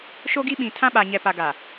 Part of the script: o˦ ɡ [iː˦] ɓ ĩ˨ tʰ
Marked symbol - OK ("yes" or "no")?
no